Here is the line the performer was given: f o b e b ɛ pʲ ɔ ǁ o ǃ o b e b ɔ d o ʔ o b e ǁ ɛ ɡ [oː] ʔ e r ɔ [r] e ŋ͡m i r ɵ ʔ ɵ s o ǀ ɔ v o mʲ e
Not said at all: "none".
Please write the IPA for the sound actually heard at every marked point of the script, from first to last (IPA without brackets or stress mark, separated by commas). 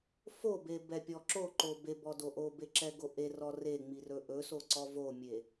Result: o, r